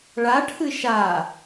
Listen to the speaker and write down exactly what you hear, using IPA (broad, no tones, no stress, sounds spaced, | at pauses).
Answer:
ɭ a ʈʰ ɨ ʃ a